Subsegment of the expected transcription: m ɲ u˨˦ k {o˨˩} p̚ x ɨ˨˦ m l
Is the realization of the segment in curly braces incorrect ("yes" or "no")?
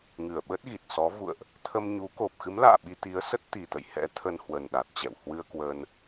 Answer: no